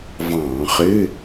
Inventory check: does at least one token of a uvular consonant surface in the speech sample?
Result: yes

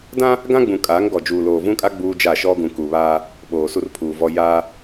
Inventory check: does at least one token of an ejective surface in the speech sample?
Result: yes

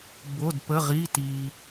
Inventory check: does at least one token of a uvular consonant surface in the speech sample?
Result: yes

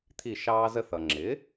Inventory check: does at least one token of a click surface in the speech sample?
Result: yes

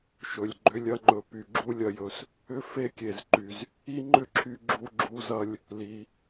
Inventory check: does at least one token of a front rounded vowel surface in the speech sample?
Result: yes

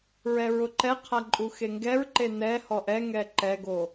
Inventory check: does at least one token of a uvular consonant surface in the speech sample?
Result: yes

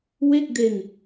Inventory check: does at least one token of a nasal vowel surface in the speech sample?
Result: no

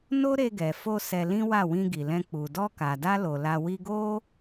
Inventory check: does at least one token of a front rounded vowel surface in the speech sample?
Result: no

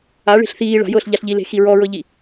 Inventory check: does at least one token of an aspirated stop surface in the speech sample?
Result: no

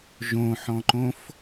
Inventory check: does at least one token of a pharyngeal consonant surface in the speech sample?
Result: yes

